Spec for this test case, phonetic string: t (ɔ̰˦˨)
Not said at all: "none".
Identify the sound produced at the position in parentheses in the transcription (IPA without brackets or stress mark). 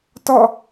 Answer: ɔ̰˦˨